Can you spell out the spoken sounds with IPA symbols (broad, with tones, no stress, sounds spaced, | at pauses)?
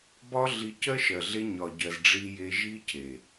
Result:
b ɒ˦ ɮ i˧ c ɜ˦ ʃ ɜ˨ ɮ e˧ ɲ ɒ˨ ɟ ɜ˨ z ɖ͡ʐ i˦ j e˦ ʒ i˦ cʰ e˨